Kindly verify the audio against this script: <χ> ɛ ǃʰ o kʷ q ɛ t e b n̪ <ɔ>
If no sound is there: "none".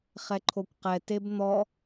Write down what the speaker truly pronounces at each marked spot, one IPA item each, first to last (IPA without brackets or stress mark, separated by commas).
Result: χ, ɔ